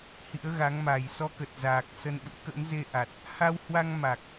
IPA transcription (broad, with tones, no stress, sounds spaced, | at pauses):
h ḭ˧˥ ə̯ ɣ a˨˦ ŋ m a˨˩ j s ɔ˧ k ə˨˩ t̚ z aː˨˩ k̚ s ə˧ n ɓ ṵ˧˥ k ə̰˧˥ n z e˧ ʔ a˨˩ t̚ | h a˧ w h w a˧ ŋ m a˨˩ k̚